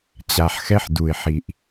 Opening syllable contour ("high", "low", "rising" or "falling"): low